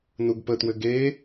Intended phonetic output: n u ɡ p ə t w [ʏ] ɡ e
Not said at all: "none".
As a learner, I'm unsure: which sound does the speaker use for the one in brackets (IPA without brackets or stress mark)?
ʏ